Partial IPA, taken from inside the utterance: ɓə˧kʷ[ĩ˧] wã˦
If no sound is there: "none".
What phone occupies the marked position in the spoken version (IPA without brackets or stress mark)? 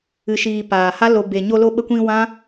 ĩ˧